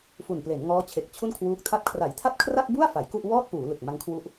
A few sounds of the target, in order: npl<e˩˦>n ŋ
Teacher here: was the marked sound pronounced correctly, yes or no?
yes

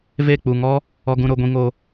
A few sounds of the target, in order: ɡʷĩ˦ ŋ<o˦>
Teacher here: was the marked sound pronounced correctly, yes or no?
yes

